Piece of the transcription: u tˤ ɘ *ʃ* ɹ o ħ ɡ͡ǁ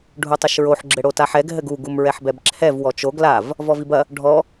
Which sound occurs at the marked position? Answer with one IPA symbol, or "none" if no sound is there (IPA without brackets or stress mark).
ʃ